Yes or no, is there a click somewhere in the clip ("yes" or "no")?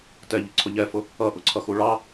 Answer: yes